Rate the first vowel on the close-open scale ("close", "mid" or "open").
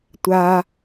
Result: open